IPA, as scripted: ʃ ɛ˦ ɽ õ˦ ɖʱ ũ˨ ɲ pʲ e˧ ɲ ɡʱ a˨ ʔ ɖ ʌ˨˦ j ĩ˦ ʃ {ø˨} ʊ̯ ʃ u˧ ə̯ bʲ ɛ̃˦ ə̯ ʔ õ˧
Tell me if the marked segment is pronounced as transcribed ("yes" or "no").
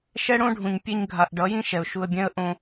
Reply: no